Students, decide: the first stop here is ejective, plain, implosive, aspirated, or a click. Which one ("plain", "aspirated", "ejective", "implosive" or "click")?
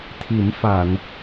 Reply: aspirated